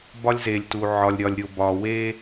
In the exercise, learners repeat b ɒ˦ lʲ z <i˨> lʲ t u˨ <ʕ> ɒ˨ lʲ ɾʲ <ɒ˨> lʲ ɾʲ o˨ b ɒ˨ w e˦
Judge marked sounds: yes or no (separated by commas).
no, yes, yes